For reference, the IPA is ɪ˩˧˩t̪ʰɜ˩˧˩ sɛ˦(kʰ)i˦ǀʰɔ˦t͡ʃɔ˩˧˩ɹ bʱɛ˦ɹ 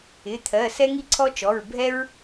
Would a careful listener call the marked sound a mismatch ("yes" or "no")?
yes